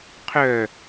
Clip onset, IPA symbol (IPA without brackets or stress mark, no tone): qʰ